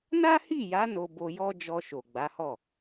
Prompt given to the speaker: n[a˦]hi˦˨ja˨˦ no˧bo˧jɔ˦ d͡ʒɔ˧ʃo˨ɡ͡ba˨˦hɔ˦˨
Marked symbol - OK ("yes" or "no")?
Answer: yes